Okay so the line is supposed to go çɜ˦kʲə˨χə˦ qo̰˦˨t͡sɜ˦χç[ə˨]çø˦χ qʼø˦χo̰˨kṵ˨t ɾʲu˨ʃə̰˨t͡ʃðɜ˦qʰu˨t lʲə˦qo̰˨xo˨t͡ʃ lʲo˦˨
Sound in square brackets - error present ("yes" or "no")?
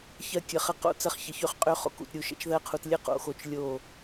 no